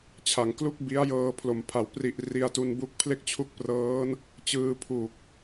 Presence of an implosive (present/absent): absent